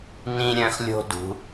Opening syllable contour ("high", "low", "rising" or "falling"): high